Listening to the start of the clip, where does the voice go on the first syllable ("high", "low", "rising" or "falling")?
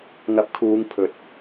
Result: rising